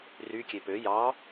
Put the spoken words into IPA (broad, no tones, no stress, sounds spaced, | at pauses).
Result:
r y kʲ e p ø j ɑ